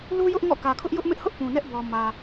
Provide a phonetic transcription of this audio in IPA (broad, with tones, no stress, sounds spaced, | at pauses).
l u˦ j ʊ˦ ʔ ŋ ɔ̰˦˨ k ä˨ kʰ ʊ˦ ʔ j ʊ˦ ʔ m ɪ˦ ʔ h ʊ˦ ʔ p ũ˨ n ɛ˦ ʔ b ɔ˨ m ä˨